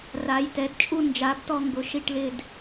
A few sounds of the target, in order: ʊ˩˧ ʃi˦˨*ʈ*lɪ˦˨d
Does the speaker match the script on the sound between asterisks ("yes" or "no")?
yes